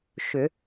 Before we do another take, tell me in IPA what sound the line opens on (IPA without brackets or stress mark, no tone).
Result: ʃ